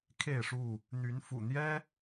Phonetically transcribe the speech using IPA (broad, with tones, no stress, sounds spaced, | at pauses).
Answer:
kʰ e˥˨ ɪ̯ ʂ u˥˨ | n̪ y˨˦ n f ṵ˨˩ n̪ j ɛ˦